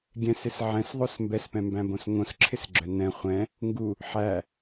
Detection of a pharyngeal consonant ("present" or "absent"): present